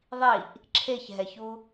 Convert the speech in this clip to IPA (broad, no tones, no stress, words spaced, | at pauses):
ðˤiʔ | ǁʰeçɦɛçu